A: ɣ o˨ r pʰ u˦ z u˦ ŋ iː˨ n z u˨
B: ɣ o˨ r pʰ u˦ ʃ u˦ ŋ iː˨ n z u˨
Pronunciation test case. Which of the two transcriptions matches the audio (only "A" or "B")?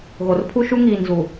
B